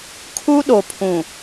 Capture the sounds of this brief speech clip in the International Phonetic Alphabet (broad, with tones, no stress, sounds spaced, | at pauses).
kʰ u˦ ɗ o˨ pʰ ũ˨